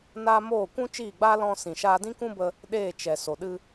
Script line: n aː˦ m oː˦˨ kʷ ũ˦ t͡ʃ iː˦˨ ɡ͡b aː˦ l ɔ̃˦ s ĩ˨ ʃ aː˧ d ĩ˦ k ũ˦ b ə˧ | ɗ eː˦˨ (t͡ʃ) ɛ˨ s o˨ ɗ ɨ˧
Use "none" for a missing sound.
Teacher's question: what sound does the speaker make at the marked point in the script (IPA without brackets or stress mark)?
t͡ʃ